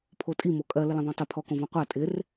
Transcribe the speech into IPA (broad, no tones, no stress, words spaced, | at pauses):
pʰotʼi mokʼɜ lələ̃ðˤõtˤɪ pʰɔkõvɔ̃ qʷa tʼɪr